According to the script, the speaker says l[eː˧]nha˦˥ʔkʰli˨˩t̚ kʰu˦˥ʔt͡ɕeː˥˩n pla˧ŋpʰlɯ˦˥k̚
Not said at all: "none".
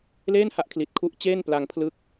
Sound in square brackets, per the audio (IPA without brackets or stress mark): eː˥˩